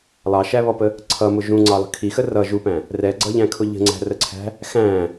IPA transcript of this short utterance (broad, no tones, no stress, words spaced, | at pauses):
lˠɑʃæβɔpə | ǀʰʌmʊ ʒũŋ͡ǀɑlˠə̤ kʰixə rʌ ʒupæ̃ | rɛɡ͡ǀʌʎæ̃kʰʊ ʎə̤ŋ͡ǀæ̤rəǀʰæ̤ | xæ̃